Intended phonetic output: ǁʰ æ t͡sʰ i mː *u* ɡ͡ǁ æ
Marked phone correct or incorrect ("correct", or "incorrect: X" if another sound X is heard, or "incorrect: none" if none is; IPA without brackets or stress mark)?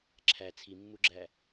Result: correct